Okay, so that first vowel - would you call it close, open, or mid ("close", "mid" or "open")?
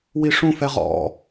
close